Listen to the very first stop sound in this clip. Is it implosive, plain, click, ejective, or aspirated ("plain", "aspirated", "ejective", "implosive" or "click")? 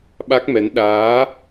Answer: implosive